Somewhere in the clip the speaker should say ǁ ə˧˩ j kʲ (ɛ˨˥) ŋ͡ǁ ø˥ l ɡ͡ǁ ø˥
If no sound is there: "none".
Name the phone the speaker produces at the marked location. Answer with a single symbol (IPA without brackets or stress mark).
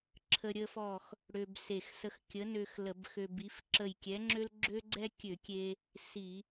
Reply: ɛ˨˥